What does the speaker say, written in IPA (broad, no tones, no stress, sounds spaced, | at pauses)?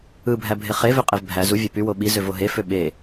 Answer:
ɯ bʱ æ bʱ e χ e v ø qʼ e v bʱ æ z u vʲ æ p y w o ɓ i z ø v o ɦ e f ø ɓ e